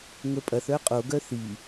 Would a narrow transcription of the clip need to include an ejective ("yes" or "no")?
yes